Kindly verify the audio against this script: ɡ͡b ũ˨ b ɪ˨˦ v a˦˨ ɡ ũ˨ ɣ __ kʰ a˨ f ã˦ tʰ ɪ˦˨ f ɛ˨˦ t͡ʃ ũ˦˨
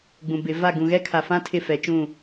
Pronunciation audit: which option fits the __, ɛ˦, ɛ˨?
ɛ˦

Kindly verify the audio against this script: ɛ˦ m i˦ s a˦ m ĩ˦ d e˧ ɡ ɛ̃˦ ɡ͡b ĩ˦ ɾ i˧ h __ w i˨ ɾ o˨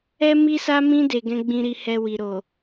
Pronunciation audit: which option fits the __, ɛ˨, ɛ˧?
ɛ˧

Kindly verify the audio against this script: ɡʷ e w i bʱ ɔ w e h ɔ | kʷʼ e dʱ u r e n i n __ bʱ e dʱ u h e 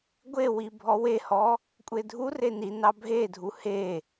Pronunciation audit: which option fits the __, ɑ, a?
ɑ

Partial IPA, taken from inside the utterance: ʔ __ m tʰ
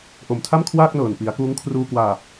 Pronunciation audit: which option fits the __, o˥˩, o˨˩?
o˨˩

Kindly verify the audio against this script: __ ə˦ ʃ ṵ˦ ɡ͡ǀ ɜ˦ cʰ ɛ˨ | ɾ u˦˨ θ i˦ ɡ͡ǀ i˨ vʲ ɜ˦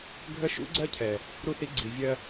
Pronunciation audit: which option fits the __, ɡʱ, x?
ɡʱ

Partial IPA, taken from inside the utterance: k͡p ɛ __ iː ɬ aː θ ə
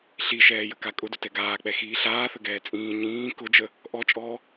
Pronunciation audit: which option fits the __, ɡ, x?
x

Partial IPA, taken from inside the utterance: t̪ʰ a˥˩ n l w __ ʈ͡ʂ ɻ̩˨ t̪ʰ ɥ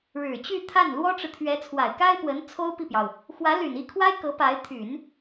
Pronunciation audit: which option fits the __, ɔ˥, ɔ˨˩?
ɔ˥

